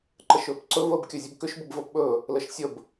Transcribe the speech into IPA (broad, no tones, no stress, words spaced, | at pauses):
ǃəʃɵːpǀɵ vəːbkʲɵzʲəbkʏʃ bəbvəːpɓɵː | ləʃsʲəb